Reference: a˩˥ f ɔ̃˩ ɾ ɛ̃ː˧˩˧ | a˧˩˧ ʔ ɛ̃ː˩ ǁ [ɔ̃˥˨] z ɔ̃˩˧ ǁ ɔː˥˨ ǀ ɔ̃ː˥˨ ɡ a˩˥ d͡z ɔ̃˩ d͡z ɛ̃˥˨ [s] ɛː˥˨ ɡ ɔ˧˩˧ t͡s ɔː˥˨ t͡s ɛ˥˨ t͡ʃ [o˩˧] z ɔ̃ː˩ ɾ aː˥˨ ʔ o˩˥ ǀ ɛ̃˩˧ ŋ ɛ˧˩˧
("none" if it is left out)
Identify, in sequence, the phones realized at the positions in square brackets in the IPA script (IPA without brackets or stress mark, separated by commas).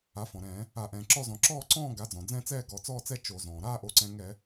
ɔ˥˨, t͡s, o˧˩˧